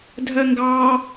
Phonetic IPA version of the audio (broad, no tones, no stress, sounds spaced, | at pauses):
dʱ ɜ ŋ ɡ ɑ